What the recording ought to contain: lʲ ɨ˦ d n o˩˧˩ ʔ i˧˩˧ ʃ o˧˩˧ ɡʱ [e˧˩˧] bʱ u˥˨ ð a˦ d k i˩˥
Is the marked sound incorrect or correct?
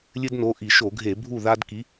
correct